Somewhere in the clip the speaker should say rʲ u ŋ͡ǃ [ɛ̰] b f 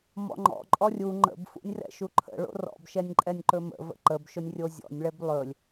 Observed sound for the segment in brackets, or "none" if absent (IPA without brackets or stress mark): ə̰